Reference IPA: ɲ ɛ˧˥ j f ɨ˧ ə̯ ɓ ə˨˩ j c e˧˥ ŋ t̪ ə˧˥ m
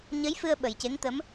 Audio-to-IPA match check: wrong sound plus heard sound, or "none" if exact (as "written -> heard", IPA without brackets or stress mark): ɛ˧˥ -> ə˧˥